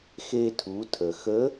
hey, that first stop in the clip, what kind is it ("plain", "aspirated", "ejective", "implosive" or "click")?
aspirated